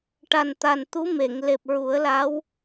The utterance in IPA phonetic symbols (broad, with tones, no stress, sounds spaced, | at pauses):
ʈ a˨˩ n t̪ a˨˩ n t̪ u˧˥ m e˨˩˨ ŋ l e˨˩ p̚ ɹ u˨˩˦ ə̯ l a˧˥ w